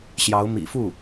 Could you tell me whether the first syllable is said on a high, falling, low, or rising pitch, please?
rising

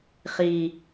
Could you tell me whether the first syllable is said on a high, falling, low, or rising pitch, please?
low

